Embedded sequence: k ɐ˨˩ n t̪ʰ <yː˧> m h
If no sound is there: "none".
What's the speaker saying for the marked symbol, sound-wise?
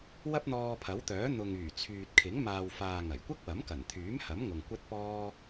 yː˨˥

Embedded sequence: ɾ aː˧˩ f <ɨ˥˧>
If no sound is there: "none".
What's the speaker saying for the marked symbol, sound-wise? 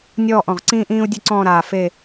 e˥˧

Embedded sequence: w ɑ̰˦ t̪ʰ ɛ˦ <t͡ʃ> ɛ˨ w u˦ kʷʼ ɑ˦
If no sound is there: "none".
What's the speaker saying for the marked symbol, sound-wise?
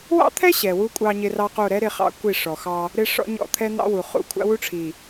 ɕ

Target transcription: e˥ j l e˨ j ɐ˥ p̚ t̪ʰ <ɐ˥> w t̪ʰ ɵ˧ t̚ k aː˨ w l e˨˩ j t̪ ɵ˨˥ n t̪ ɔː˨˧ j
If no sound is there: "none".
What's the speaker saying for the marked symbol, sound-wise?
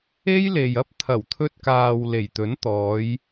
ɐ˨˩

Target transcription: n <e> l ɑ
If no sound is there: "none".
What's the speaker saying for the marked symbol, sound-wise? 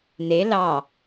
e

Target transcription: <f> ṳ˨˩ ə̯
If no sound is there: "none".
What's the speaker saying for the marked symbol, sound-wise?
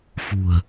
f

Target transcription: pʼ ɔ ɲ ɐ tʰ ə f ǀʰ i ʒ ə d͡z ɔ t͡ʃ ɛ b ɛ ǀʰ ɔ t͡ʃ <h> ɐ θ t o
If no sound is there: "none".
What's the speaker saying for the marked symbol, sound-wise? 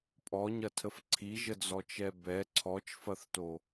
f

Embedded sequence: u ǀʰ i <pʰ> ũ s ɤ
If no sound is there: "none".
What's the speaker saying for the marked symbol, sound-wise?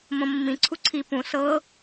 p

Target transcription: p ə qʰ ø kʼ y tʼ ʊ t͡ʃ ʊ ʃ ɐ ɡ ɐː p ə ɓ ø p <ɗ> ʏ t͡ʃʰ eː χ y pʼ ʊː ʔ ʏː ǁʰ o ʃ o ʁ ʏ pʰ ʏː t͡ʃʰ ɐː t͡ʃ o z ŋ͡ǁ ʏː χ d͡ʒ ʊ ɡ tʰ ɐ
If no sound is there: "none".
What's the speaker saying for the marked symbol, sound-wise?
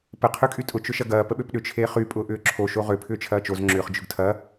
ɗ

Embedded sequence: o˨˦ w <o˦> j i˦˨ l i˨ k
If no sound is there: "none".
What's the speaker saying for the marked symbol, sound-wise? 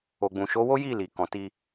o˦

